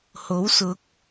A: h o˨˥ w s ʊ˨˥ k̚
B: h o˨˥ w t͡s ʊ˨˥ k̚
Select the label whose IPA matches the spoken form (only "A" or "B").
A